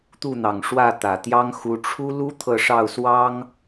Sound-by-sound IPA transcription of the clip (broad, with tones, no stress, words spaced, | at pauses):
t̪u˥˩n̪ɑ˨˩ŋʂwä˥˩ t̪ä˨˩ t̪jɑ˥ŋxu˧˥ ʈ͡ʂʰu˥lu˥ t̪ʰɤ˥˧ʂɑ˥˩ʊ̯swɑ˥ŋ